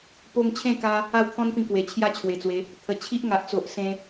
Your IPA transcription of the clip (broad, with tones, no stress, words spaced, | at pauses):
po˧ŋt͡ɕʰẽ˥˧ka˧ | a˥˧wt̪ʰɔ̃˦npĩ˧ kwe˨˩t͡ɕʰja˦ t͡ɕʰwe˨˩t͡swe˨˦ | t̪ʰə˨˩ t͡ɕʰi˦ʔŋa˨ʔt͡so˨ʔ sẽ˦